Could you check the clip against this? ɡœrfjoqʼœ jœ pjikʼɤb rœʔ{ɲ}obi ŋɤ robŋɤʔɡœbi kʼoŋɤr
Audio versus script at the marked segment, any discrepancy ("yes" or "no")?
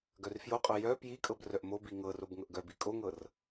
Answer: yes